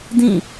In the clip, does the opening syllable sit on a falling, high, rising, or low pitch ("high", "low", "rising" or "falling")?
falling